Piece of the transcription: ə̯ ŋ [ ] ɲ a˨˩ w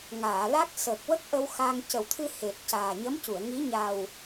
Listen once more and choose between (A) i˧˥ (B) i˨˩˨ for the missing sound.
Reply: A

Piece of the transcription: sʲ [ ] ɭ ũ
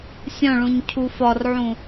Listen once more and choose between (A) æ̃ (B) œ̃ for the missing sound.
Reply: B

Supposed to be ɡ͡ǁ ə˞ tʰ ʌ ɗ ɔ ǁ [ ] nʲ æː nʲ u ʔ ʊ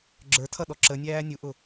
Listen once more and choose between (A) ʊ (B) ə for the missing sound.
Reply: B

